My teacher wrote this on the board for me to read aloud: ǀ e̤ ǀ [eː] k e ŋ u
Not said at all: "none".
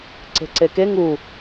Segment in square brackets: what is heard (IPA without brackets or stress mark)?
e